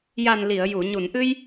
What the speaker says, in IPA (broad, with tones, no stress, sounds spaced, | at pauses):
j a˨˩ n l i˨˩˨ ə̯ j u˨˩˨ ɲ u˨˩˨ n ʔ ɨ˧ j